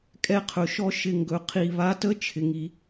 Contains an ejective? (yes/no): yes